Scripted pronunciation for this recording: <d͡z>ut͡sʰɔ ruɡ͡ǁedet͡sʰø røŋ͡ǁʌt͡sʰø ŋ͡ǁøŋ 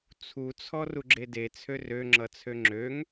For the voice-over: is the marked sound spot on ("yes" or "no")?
no